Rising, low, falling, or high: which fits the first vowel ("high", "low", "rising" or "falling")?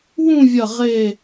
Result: falling